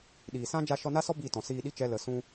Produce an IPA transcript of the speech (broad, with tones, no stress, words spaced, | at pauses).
ɗiː˨sã˦ d͡ʒa˧ʃɔ˧na˦sɔ˦ bi˦˨tɔ̃˨ siː˧ɗi˦t͡ʃɛ˧ lə˨sũ˧